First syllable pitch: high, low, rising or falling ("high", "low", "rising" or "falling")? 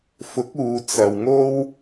rising